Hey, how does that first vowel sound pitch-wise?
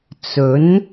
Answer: rising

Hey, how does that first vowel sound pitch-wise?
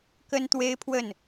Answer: high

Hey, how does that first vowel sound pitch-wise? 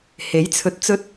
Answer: rising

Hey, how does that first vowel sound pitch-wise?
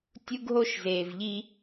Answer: high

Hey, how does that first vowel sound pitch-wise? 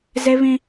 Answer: high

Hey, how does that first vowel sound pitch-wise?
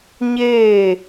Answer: falling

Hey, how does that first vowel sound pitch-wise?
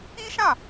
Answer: high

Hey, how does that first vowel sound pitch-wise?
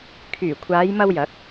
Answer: low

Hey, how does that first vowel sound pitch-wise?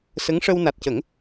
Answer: rising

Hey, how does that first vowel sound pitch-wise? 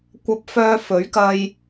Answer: high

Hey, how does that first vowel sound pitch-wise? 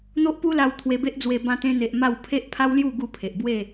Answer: high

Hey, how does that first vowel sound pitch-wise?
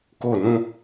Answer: falling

